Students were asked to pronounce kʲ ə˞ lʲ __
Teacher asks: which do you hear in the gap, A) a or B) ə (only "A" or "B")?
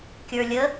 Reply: B